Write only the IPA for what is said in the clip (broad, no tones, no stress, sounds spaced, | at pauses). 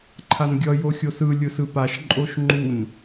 ǃʰ a n ɡʲ ʌ j o xʲ o s ɯ lʲ ɯ s ɯ p a ʃ ǃʼ o ʃ ŋ͡ǃ u n